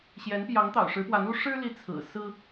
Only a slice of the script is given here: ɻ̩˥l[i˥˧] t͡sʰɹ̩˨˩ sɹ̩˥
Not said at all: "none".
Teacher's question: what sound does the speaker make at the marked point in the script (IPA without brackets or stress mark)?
i˧˥